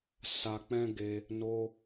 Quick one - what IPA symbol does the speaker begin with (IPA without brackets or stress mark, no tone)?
s